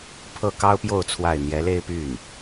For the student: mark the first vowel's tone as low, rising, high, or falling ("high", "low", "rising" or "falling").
falling